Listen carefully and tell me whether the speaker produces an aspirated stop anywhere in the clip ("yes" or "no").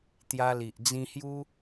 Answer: no